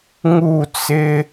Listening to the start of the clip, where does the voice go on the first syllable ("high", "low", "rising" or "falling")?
falling